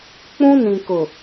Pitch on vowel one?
high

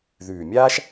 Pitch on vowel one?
low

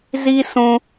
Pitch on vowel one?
high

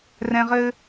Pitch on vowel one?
low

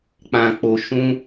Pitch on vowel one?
low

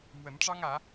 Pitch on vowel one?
rising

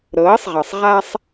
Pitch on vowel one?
rising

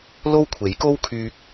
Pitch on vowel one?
high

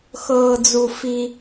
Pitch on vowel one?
high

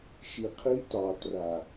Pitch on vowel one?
low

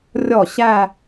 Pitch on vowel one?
falling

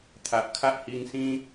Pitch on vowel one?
low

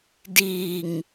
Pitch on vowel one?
low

